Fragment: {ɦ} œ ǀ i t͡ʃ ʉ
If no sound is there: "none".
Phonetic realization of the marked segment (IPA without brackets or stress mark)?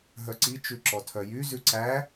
ɦ